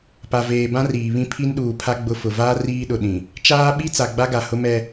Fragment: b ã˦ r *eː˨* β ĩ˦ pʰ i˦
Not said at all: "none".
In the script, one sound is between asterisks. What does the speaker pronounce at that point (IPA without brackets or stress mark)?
iː˨